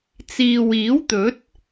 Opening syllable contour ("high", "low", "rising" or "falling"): low